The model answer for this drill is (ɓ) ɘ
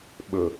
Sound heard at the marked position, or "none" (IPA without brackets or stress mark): ɓ